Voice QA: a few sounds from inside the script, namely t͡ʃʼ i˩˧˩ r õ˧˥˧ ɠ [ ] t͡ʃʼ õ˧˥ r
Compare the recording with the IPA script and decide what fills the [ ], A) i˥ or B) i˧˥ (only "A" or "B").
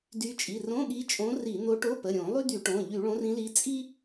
B